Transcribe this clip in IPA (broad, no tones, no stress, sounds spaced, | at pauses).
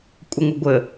kʷʼ ə ŋʷ ə ɡʷ ə